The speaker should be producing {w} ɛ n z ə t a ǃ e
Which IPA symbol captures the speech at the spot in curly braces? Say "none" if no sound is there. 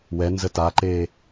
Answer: w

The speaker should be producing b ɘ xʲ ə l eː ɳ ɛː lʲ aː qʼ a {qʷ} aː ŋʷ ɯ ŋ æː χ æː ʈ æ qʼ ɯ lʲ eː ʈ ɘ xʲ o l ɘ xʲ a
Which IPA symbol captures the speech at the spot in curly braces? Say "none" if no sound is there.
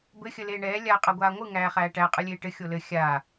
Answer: ɡʷ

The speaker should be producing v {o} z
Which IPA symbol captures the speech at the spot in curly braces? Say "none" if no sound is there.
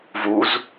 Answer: u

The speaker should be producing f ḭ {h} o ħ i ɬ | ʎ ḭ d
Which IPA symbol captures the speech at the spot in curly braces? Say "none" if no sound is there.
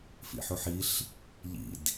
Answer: ħ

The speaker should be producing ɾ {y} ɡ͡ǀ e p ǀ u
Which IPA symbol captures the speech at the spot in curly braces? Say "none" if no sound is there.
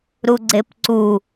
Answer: u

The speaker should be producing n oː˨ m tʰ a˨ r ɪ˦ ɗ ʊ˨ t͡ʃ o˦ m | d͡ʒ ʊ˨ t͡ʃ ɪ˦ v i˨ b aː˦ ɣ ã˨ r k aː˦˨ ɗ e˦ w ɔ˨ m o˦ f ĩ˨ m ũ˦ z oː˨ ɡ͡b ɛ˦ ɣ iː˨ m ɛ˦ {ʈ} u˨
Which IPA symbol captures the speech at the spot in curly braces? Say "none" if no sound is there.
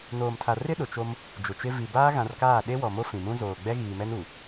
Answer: n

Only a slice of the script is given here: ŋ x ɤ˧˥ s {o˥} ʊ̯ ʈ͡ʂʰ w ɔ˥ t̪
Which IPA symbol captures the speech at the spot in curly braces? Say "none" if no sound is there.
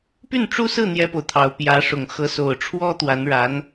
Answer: o˨˩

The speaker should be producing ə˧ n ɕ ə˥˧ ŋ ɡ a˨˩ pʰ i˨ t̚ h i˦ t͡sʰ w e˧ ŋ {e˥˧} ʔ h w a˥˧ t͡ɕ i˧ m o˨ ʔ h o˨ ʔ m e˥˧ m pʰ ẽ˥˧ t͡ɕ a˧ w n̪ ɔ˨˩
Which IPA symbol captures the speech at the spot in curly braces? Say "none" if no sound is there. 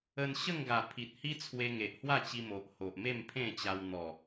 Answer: e˨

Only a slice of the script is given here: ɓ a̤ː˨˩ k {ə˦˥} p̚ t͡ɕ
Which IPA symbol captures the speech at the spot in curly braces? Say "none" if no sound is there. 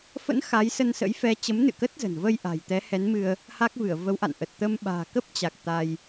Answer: ə˦˥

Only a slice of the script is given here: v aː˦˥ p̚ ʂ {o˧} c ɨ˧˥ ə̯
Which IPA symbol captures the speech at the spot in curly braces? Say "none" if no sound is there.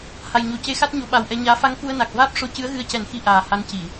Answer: o˧˥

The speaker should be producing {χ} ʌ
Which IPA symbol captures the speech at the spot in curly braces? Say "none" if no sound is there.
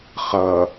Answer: χ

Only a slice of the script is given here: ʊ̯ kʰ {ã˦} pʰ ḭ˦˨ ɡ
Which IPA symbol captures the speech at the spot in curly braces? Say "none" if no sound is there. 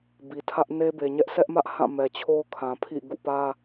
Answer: ã˨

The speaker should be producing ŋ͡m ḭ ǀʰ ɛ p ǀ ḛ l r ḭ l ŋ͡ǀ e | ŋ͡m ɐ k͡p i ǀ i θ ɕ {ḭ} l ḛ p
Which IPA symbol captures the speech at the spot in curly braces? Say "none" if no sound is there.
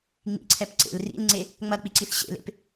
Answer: ḛ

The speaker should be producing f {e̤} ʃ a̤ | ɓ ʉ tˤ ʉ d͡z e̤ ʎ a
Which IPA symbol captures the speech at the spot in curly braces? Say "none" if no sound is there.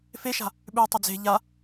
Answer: e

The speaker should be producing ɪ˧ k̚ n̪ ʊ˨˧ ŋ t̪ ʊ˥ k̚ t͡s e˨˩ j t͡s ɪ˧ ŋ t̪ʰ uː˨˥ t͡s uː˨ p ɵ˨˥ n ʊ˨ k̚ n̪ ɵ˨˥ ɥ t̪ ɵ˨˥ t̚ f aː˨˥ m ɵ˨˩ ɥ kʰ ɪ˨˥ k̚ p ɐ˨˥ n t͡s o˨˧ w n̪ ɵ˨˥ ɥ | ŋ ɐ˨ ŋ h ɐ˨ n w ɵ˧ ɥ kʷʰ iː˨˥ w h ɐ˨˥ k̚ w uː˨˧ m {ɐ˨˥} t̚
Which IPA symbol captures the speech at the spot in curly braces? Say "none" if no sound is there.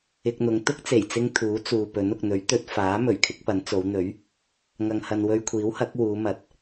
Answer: ɐ˨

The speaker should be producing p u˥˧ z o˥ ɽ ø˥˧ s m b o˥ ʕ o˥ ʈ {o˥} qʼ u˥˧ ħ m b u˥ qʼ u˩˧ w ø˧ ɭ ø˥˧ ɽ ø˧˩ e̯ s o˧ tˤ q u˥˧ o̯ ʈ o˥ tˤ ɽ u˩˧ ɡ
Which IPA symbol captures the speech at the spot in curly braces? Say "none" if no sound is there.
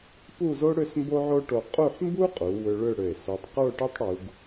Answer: o˧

